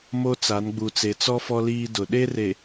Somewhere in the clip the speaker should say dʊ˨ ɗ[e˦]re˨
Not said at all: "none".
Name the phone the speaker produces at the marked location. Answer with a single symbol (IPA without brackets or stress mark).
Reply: e˦